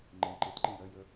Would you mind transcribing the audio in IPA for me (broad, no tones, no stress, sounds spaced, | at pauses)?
ŋ͡ǃ ẽ ǃ e t ǃ ẽ j ɜ j ə